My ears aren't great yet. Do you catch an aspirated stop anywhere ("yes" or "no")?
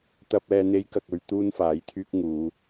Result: yes